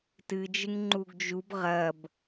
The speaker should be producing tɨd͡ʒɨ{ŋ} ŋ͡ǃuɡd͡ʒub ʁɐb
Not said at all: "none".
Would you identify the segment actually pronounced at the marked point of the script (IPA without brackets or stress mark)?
ŋ